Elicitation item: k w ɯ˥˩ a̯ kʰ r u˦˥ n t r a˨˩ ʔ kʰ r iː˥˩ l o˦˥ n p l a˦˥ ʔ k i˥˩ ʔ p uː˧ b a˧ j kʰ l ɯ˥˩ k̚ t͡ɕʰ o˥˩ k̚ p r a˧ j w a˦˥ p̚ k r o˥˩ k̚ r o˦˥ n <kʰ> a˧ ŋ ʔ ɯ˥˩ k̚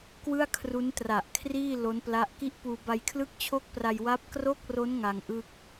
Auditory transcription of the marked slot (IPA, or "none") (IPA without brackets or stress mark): ŋ